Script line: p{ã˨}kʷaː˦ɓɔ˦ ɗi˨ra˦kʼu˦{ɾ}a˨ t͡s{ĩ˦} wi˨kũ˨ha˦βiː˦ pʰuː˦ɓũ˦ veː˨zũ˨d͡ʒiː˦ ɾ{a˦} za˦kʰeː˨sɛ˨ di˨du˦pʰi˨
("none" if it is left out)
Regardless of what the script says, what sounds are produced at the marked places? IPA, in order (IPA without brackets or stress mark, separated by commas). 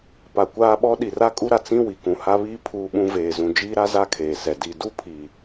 a˨, ɾ, ĩ˦, a˦